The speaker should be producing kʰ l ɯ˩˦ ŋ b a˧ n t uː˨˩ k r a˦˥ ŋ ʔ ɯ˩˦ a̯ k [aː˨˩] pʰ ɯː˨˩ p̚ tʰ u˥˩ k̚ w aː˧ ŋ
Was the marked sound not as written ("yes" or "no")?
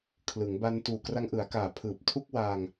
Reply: no